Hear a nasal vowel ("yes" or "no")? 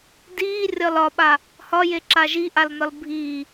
no